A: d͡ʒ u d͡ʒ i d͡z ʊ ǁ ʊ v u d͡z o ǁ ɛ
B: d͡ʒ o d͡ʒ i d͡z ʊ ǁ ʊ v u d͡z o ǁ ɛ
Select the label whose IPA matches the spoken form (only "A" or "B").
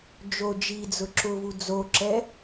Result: B